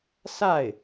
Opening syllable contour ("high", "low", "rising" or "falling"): falling